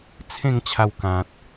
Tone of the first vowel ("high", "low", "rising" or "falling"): falling